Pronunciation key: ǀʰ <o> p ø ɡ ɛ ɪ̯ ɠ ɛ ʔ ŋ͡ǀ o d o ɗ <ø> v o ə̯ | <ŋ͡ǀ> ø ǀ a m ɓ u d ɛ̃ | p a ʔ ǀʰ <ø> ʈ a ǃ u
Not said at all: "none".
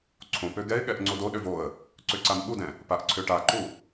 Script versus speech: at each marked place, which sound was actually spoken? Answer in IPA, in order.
õ, ø, ǀ, ø

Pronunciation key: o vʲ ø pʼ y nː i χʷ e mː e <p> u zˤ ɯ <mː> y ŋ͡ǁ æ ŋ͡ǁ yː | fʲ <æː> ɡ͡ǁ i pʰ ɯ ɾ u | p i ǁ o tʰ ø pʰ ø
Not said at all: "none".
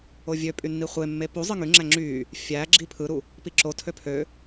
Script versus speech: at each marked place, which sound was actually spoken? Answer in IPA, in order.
p, ŋ, æː

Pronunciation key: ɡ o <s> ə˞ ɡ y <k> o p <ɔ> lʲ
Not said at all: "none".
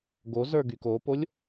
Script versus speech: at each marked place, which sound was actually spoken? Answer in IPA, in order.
z, k, o

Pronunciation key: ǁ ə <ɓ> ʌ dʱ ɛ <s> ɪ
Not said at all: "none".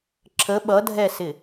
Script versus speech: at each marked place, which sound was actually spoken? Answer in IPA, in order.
ɓ, s

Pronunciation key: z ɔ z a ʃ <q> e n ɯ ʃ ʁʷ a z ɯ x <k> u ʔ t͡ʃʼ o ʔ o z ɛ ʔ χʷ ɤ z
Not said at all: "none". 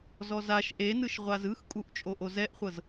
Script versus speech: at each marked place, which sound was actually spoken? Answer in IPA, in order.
ʔ, kʼ

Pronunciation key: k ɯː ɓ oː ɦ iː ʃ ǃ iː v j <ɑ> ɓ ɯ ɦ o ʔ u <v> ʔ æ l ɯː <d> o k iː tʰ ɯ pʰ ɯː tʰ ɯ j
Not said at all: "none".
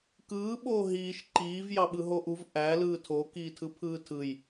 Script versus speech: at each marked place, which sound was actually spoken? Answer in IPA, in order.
ɑ, v, tʰ

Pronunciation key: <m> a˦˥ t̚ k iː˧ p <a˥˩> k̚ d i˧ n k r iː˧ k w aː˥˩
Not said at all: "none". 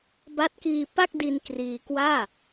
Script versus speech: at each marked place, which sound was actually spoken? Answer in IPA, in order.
b, a˥˩

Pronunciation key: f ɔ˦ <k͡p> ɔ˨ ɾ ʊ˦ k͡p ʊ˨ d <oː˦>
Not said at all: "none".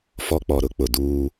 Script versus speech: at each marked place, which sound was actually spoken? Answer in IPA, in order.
k͡p, uː˦

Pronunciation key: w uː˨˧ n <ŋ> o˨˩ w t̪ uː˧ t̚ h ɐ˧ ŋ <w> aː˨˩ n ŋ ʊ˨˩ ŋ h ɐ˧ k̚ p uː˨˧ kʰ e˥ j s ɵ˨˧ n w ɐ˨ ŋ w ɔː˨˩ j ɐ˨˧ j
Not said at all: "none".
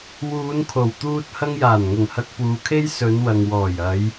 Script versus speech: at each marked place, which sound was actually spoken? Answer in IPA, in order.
kʰ, j

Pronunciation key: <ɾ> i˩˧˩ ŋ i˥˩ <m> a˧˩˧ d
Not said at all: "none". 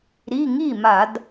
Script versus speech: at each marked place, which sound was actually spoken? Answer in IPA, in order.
ɾ, m

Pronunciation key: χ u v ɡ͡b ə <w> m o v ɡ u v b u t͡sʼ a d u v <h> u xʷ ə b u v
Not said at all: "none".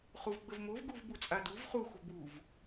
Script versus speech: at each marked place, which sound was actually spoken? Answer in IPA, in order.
v, χ

